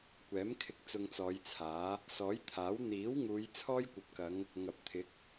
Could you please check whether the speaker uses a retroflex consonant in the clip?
no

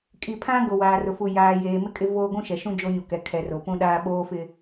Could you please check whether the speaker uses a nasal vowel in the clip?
yes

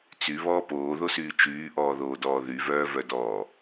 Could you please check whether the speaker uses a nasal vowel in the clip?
no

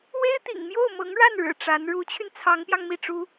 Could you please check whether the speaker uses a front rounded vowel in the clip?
yes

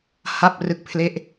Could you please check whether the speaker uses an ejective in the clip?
no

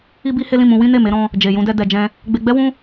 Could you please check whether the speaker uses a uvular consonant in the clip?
no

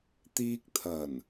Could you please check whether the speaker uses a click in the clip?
no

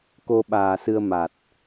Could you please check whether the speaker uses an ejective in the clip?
no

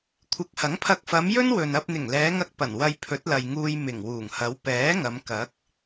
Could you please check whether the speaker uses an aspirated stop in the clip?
yes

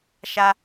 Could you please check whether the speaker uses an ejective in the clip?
no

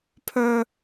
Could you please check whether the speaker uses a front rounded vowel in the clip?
yes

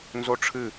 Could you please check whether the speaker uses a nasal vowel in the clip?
no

